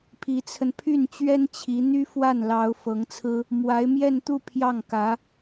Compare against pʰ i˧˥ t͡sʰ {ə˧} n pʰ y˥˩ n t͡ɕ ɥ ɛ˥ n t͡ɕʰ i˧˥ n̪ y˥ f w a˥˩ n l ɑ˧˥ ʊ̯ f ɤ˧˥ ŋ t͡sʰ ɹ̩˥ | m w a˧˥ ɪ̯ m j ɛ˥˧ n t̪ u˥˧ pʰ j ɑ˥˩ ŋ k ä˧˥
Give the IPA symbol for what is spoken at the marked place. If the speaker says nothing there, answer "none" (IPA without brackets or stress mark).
ə˧